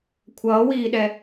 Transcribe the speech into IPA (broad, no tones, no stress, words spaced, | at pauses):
kʷʰʌːwiːɗɛ